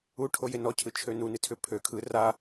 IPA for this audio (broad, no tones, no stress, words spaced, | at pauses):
uʈʰoje nɔcʰɯt͡ʃʰø nunɨ tʰʏ pʰø kʰɯ ra